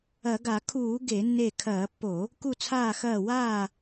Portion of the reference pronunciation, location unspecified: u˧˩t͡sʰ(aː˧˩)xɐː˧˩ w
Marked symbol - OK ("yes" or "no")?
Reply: yes